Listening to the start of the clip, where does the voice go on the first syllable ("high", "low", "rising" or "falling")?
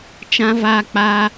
high